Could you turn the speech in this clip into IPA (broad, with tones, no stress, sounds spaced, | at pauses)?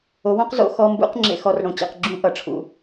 o˨˥ w õ˦˥ q z o̰˨˩˦ x ɔ˧˥˧ m b ṵ˦˥ q ŋ͡ǁ ḛ˦˥ x ɔ˦˥ r ɽ õ˨˥ t͡ɕ ḛ˧˥˧ q ɡ͡ǁ ũ˦˥ ʔ ʌ˨˩˦ ʈ͡ʂʰ ṵ˨˩˦